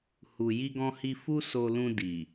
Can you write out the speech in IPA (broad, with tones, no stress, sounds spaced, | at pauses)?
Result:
h u˨ j i˧ ɡ ɔ̃˧ h i˧ f u˦ s o˧ l ũ˧ d i˨